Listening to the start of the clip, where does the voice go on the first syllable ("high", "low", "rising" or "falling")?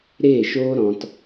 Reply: falling